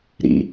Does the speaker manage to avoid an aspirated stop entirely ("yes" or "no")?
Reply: yes